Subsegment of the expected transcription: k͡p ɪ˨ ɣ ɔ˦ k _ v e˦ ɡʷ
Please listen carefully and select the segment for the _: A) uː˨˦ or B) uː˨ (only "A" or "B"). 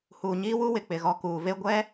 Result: B